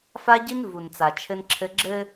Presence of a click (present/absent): present